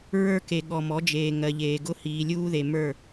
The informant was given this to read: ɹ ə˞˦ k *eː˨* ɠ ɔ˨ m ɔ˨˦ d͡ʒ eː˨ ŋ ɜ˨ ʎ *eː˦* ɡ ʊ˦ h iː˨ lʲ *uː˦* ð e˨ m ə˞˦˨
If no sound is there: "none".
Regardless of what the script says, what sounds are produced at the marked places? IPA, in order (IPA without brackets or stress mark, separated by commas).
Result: e˨, eː˨, uː˦